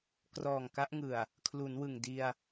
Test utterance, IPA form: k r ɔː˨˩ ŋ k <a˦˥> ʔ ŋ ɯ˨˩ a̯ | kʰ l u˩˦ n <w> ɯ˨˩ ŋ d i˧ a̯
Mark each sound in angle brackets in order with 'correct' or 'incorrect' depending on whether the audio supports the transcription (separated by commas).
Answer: correct, correct